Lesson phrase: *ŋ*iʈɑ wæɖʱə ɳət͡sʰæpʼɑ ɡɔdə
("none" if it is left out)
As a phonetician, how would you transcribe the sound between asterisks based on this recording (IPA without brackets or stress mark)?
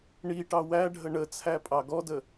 ɳ